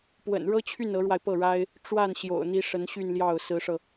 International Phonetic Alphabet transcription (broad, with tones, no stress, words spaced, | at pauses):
pwə̰˨˩nɻɤ˥t͡ɕʰy˥˩n ɤ˧˥ɻwa˧ɪ̯pɤ˥˩ɻa˥ɪ̯ | ʈ͡ʂwa˥˩n ɕjo̰˨˩ʊ̯n̪i˧˥ ʂə˧˥nɕy˥˧nljɑ˥˩ʊ̯ sɹ̩˧˥ʂɤ˧